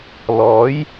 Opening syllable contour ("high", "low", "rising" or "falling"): rising